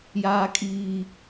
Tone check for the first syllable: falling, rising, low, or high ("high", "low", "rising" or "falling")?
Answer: high